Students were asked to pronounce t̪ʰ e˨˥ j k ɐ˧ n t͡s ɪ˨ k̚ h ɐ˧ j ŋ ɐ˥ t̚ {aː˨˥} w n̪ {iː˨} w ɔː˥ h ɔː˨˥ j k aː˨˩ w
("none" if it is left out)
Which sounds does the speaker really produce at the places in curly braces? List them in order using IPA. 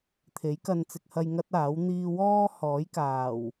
aː˨˥, iː˥

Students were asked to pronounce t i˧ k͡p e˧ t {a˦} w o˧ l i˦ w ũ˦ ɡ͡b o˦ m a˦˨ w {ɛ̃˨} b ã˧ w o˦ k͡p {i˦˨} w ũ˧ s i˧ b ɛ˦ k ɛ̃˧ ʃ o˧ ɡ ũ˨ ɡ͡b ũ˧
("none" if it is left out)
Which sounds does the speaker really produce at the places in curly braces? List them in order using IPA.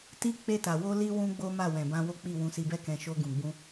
a˨, ɛ̃˨, i˦˨

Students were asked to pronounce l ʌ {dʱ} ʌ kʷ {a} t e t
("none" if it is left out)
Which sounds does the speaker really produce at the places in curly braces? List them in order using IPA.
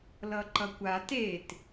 ǃ, a

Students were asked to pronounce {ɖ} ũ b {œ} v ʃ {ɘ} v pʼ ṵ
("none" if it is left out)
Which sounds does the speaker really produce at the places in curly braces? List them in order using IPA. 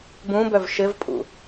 b, œ, ɘ

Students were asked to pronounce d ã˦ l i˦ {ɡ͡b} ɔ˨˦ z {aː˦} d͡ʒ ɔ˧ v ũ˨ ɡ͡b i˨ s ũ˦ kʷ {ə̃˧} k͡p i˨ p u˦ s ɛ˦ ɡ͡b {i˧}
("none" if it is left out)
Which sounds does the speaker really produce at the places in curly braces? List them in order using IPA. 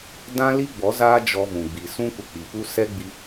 ɡ͡b, aː˦, ə˧, i˧

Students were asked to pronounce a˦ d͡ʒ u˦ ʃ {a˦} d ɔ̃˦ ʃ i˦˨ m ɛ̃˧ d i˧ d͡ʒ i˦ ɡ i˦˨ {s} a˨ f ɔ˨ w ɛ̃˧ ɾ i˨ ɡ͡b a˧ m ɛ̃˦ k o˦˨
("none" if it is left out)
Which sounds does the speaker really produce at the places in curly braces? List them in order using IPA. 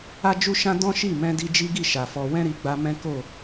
ã˦, ʃ

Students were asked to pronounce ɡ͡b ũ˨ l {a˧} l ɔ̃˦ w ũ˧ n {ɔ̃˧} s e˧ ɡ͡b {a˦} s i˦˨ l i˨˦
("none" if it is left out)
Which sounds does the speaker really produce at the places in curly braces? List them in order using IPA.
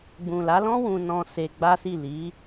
a˨˦, ɔ̃˧, a˦

